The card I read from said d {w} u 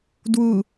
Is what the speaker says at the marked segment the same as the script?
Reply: yes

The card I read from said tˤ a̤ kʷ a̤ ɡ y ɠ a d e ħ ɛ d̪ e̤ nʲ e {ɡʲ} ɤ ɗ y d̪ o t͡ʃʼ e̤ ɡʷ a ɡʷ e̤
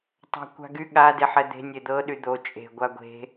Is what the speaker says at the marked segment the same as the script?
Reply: no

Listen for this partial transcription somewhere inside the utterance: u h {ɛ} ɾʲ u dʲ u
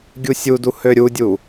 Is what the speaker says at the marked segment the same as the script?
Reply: no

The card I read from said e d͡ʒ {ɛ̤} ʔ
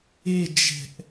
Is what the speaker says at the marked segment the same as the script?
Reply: yes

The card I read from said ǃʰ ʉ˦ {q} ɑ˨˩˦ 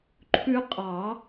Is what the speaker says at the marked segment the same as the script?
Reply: no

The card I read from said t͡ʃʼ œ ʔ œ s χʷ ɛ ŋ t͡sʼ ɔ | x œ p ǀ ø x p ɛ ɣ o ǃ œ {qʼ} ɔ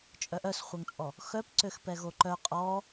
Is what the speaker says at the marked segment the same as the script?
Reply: yes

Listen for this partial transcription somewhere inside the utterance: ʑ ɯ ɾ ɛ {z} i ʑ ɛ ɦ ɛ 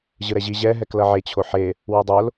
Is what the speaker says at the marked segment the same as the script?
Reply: no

